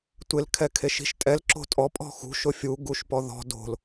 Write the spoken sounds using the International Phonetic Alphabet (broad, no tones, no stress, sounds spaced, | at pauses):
tʷ ɪ l kʰ ɛ kʰ e ʃ i̤ ʃ tʼ ɛ l ǁ o̤ tʼ ɔ pʼ ɔ̤ x ṳ ʃ ʊ fʲ u ɡ u ʃ p ɔ ð ɔ̤ d o̤ l